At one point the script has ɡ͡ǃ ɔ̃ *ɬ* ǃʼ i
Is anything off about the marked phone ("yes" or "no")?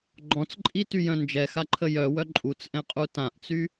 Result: yes